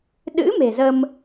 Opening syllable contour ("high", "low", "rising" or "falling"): rising